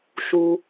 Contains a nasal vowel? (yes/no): no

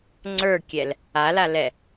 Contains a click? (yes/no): yes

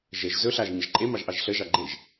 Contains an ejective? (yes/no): yes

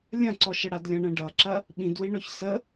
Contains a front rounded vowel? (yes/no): no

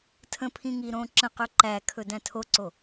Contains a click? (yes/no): yes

